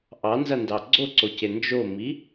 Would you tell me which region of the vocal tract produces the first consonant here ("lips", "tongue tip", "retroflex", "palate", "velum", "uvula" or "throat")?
throat